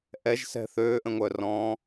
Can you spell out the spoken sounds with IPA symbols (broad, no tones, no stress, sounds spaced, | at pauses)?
ʔ ɛ ʒ s ɛ̤ θ øː ʔ ə̃ ŋʷ œ r ɔ̃ː